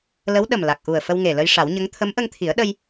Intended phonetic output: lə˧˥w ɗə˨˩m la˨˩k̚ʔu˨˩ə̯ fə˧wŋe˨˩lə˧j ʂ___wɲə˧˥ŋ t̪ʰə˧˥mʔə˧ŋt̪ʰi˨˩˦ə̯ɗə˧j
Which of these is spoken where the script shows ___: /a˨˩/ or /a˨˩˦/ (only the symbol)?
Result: a˨˩˦